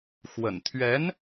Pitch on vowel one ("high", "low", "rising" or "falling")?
low